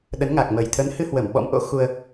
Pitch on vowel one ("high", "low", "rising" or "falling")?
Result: rising